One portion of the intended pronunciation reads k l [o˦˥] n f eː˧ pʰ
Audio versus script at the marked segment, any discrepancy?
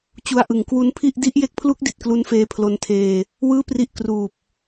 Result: yes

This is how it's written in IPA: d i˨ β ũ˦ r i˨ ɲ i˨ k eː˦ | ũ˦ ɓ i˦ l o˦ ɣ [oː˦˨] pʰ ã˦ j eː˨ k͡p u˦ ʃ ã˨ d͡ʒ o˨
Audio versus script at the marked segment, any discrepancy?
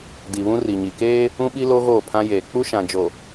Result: no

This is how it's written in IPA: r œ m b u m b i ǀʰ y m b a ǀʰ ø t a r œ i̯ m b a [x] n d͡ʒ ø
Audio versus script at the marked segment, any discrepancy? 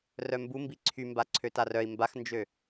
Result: no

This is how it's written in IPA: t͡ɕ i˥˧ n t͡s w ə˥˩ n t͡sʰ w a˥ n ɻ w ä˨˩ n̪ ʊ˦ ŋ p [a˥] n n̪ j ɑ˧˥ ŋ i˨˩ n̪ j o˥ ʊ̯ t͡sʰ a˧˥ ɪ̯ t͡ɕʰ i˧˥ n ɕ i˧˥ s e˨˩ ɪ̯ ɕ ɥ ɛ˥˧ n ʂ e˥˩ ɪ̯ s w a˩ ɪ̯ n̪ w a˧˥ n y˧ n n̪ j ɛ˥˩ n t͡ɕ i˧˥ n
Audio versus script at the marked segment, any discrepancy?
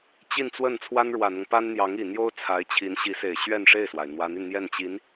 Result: no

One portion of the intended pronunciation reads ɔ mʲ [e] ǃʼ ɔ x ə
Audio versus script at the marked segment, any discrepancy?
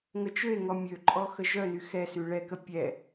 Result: yes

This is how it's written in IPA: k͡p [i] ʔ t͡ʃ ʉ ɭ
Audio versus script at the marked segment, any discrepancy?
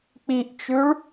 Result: no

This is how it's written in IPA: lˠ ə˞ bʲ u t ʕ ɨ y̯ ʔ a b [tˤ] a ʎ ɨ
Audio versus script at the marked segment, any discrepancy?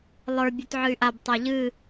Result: no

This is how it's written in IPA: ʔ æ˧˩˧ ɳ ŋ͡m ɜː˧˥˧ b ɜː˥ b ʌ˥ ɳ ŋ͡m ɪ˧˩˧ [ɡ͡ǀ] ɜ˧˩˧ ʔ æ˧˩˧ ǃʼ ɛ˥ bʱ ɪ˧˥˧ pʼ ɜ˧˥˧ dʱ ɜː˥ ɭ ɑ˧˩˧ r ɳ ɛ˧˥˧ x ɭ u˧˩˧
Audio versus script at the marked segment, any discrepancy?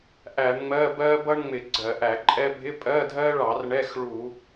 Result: no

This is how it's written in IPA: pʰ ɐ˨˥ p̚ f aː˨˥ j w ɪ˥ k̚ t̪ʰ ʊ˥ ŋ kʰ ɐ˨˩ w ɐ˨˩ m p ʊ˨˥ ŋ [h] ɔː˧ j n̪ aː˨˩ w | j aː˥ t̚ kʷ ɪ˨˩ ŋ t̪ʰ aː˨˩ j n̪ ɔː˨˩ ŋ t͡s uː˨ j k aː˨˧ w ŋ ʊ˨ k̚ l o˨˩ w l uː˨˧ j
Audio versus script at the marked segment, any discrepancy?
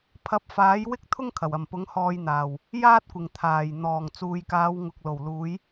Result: no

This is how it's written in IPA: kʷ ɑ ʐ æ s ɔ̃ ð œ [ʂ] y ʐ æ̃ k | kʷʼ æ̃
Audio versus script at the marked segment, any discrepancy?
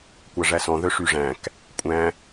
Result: no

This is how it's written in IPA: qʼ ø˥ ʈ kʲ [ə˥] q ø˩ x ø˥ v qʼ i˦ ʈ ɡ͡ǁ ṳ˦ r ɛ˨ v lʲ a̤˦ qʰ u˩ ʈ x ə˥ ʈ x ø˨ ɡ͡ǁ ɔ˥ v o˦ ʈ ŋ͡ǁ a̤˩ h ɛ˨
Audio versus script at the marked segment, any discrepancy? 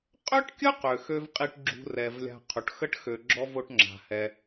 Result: no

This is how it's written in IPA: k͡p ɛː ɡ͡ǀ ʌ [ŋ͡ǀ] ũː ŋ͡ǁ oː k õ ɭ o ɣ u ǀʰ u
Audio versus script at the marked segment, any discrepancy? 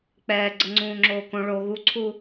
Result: no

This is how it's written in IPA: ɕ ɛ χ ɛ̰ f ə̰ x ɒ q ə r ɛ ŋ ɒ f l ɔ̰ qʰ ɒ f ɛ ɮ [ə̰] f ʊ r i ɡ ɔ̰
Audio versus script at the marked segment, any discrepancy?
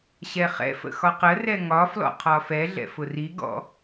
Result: yes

